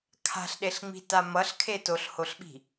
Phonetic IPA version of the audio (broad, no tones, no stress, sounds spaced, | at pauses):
kʰ a̤ ɬ ɗ e ɬ ŋ͡m i̤ t a m ʌ ɬ kʰ e t o ɬ h o ɬ ɓ i̤